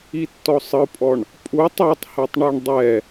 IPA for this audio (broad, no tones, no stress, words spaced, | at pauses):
itːɔsˤɯpʼɔɳ | pʼutˤ ɤtˤhɛtˤɳɛɳ dˤɛ